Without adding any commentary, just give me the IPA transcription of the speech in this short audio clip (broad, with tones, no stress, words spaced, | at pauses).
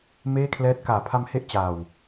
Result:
meː˥˩kʰlɛː˦˥t̚ kaː˩˦pʰa˧mhe˦˥ʔ t͡ɕaː˨˩w